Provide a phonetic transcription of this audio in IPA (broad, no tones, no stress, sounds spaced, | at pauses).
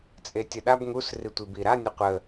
t͡sʼ e tʲ ə ɗ a b ŋ u s r i tʷ i b i ɾ a nʲ ə qʷ ə